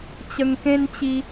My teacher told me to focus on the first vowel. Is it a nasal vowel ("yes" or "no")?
no